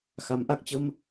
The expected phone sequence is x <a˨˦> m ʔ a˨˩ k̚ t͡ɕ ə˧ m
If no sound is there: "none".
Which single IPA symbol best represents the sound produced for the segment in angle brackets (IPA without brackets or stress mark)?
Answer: a˨˦